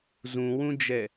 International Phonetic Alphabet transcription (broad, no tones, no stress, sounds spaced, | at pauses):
z ũ w ũ d͡ʒ ɛ